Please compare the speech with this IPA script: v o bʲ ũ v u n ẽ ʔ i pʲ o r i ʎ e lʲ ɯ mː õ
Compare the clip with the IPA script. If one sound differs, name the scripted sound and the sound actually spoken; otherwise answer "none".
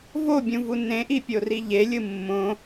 none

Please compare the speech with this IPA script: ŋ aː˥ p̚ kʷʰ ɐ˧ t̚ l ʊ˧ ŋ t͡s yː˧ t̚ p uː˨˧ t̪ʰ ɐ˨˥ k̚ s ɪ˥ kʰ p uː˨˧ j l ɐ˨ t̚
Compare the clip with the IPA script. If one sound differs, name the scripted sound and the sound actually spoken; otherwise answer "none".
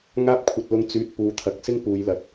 kʰ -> ŋ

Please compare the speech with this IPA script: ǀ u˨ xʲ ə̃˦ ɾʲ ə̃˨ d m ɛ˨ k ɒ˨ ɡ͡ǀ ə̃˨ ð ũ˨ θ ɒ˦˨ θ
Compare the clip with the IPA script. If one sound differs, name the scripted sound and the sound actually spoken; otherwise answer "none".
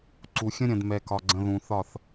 none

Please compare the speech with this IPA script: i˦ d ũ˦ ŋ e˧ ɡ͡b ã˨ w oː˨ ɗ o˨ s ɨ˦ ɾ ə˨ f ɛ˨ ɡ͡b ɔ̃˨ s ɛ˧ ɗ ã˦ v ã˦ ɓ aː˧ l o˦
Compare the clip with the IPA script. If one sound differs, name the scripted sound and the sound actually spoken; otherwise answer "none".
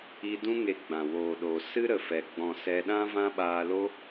none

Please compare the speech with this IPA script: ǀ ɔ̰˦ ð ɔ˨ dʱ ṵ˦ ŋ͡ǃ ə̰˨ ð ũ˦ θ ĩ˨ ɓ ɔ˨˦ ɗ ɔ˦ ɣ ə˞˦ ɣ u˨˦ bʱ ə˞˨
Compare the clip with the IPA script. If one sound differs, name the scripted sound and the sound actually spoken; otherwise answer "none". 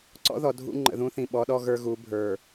none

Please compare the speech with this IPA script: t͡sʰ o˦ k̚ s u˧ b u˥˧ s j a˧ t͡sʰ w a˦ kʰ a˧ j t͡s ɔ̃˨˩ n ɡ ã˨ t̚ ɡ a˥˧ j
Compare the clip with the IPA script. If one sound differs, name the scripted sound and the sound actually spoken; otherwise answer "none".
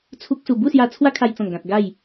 o˦ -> u˦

